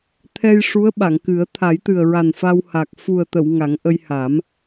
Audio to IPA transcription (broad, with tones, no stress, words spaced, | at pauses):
t̪ʰɛ˧jʂu˧˥ə̯ ɓa˨˩˨ŋkɨ˨˩˦ə̯ t̪ʰa˨˩˦jt̪ɨ˨˩ə̯ɹa˨˩n fa˧wha˨˩k̚ fu˨˩ə̯t̪ə˨˩˨w ŋa˨˩˦ŋʔə˧jha˨˩˦m